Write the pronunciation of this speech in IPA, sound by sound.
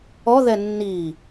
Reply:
ɔ ð ɛ nː i

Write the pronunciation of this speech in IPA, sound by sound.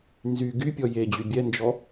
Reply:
n z y ɡ y pʲ ɔ j e d͡ʑ y bʲ ɛ n d͡ʒ ɔ

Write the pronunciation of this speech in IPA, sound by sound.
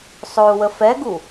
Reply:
sˤ o u̯ w ə f ɛ ɡ u

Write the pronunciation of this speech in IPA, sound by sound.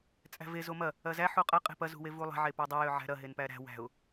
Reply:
t͡sʼ æ̤ v e z o m ɐ | ɐ z æ ħ u qʼ ɐ qʼ e̤ p ɐ z ṳ w e v u lˠ e̤ ʕ e p ø dˤ e j ø ʕ æ̤ ɾ ɐ ɦ e n p æ ɾ æ̤ w æ̤ ʊ̯

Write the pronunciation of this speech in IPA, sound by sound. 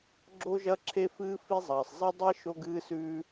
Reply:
ɡ͡ǁ o˥ ʒ ɐ˥ ǁʰ e˥ f ɨː˥ f i˥ zˤ ɐː˩ sˤ zˤ e˥ dˤ e˥ ʃ o˥ ɡ ɨː˥ s ʉː˥

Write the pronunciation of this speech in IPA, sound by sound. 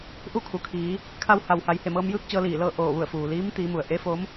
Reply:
ʔ u˥˨ kʰ u˩ kʰ iː˩˧ | kʰ a˧ w h a˩ w h a˩˧ j h e˧˩ m ɤː˧ m j ɯː˥˨ k̚ t͡ɕ ɤː˧ l iː˧˩ l ɤː˥˨ ʔ oː˧˩ ʋ u˧˩ ə̯ f uː˩ l iː˧˥ m t̪ iː˩˧ m u˩ ə̯ ʔ e˧˥ f o˧˥ m

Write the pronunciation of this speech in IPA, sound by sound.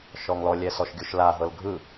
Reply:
ʃ ɔ ŋ l ɔ lʲ ɛ s ɔ ʃ ɡʲ u ʃ l a ɦ ɤ l ɡʱ ɯ

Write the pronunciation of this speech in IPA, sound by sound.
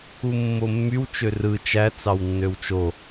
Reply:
u mː o mː y w t͡ʃ ø r ɯ t͡ʃ æ t͡s ɑ w nː ø w t͡ʃ o

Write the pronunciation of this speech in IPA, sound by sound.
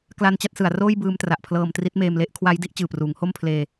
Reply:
k l a˧ n t͡ɕ a˥˩ t̚ s ɯ˩˦ a̯ r oː˥˩ j b ɯː˧ m t r a˨˩ ʔ pʰ l ɤː˧ m t r i˦˥ t̚ m eː˧ m l e˥˩ ʔ kʰ w a˦˥ j d i˥˩ ʔ t͡ɕ ɯː˨˩ p r uː˩˦ ŋ h o˥˩ m pʰ l eː˧

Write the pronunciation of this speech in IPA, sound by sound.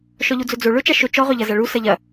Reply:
ʃ ɔ ʎ u d͡z ɵ d͡z o ɭ ɵ t͡ʃ a ʃ ɵ t͡ʃ ɔ ʁ ɵ ʎ ɐ z a ɭ u s ɐ ʎ ɐ

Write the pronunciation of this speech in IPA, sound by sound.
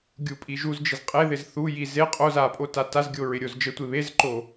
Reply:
ɡʲ u pʼ i ʒ u z d͡ʒ i z qʼ e ð ɪ z θ u j i z e qʼ o z a pʼ o t a t a z ɡʲ o ɹ ɪ ɾʲ o z d͡ʒ ə tʷ e β e z ǃ o

